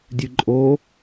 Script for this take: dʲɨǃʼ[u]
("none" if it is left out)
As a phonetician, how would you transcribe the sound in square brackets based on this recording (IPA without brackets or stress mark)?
o